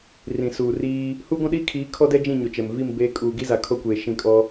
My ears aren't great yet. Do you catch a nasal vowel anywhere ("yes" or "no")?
yes